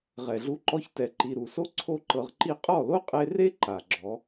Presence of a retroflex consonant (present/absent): absent